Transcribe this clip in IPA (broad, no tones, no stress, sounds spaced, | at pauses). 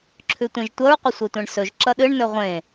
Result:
ǁʰ ʉ tʷ ẽ ʒ tʷ ɐ ɹ qʷ ɐ sʷ e tʷ ẽ ɳ s ɵ ʒ ǁ ɐ ɗ ɨ ɳ n ɵ ʁʷ ẽ